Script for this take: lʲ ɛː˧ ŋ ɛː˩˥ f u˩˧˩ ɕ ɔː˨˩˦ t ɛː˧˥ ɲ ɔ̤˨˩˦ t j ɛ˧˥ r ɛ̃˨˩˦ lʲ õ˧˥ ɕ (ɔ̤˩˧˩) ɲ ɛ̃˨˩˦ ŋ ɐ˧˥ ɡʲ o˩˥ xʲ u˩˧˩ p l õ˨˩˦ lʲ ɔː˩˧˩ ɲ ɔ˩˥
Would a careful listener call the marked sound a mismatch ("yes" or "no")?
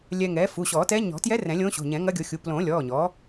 yes